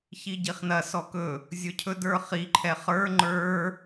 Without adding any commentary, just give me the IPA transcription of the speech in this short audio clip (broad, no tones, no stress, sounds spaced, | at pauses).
ç i ɟ i χ n ɐ s ɔ k ɵ | zʲ ɵ cʰ ɵ d ə˞ χ i ǃʰ ɛ χ ə˞ ŋ͡ǃ ə˞